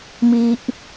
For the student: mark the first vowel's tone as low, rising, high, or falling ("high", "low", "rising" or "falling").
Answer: high